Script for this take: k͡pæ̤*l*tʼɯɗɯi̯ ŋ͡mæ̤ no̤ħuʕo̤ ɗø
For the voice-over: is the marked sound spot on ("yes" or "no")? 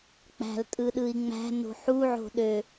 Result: yes